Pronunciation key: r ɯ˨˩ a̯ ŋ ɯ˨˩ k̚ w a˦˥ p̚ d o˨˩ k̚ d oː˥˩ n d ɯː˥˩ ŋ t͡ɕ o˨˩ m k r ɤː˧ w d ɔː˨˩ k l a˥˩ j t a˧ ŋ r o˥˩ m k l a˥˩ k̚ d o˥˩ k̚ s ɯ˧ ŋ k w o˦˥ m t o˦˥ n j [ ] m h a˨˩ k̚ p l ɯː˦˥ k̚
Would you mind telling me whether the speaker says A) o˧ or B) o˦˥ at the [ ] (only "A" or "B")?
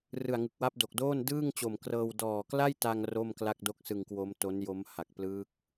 B